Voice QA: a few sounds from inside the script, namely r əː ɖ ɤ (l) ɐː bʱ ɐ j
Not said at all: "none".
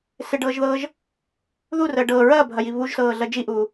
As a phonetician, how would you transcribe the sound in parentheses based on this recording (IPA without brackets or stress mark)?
ɹ